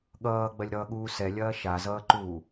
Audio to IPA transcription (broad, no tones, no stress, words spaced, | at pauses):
ɠʌːɡ͡bɐlʲɾʌːɠuː sɛlʲɐː ʃazʌːǃuː